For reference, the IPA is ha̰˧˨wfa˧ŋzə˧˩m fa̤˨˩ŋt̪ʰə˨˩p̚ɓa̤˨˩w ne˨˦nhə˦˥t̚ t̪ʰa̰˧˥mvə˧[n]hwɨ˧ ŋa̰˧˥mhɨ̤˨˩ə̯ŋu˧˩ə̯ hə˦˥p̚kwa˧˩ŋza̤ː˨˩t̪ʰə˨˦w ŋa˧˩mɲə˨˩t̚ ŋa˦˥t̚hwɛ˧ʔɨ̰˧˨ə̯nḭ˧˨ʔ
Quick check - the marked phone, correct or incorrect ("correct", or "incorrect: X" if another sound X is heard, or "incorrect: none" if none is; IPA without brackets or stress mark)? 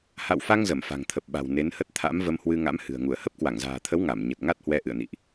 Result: incorrect: m